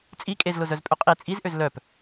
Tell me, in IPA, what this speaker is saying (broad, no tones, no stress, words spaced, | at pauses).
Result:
t͡sʼi kʼezlʊzœzpʼø qʼi t͡sʼizʔøz lœp